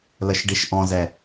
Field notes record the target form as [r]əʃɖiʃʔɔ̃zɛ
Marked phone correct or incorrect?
incorrect